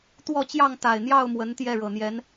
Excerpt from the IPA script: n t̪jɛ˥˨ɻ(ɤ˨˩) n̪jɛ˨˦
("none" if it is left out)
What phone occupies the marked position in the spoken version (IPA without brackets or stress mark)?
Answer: ɤ˨˩